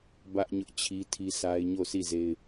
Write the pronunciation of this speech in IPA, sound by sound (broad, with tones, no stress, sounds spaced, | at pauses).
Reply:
b ä˦ ʔ ɲ ʊ˦ ʔ t͡ɕʰ i˦ tʰ i˦ sʰ a˦ ɪ̯ ɲ o˦˨ s i˦˨ z e˦ ɪ̯